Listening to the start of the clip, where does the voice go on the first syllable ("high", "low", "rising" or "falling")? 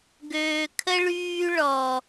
low